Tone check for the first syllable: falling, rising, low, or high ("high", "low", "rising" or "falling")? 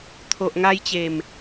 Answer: low